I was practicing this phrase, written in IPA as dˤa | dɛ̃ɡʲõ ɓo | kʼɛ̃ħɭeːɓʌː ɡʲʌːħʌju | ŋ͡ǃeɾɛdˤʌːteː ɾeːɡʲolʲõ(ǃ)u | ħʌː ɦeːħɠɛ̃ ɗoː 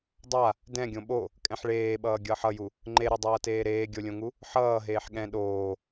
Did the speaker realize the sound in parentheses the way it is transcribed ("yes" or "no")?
no